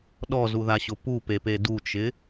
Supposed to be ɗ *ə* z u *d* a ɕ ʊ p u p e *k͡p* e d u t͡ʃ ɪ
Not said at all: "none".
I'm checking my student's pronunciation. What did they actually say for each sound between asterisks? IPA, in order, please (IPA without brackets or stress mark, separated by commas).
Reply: ɔ, ð, p